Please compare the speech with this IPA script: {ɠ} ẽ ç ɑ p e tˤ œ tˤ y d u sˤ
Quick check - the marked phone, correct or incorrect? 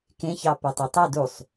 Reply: incorrect